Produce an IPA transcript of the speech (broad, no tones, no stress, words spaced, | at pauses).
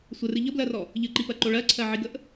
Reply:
sʷərɨ ʎəblɜrɔ | ʎɨǃipɜǃo ɭɜǀʰɜʕiɡəʔ